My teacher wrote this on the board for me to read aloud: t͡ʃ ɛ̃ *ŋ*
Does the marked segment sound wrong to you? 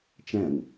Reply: no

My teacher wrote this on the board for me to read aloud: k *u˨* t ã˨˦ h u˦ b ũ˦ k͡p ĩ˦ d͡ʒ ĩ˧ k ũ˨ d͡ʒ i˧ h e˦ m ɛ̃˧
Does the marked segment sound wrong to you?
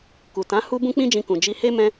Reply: no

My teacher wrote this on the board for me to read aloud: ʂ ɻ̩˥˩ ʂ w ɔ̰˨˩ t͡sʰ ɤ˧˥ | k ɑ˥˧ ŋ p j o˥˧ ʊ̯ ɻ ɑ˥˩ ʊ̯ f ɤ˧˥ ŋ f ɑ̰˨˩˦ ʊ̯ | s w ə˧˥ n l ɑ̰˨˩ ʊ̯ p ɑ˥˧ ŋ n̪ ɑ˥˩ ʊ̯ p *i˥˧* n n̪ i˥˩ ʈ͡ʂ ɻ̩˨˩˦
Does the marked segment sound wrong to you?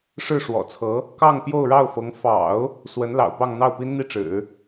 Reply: yes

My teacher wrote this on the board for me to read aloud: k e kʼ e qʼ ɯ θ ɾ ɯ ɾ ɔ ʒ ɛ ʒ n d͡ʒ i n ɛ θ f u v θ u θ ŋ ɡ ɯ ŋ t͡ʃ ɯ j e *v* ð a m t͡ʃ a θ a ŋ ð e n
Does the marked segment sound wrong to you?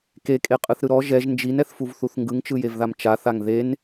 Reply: no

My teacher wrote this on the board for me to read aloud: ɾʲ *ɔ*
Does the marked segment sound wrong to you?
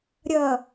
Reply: yes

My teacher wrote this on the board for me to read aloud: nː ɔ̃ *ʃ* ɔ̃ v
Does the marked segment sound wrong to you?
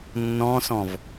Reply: yes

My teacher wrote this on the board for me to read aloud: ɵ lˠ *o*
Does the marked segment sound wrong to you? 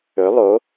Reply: no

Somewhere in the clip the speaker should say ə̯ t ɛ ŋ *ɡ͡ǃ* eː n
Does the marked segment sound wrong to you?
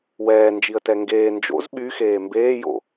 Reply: yes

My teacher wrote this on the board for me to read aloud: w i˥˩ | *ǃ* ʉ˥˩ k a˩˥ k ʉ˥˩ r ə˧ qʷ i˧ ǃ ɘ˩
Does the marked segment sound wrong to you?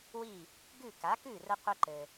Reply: yes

